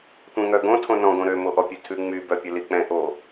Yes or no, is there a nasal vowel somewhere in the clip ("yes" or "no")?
yes